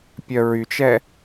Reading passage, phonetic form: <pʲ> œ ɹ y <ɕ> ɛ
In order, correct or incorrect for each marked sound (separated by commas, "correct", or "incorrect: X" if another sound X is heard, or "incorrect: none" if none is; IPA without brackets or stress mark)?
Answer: correct, incorrect: t͡ʃ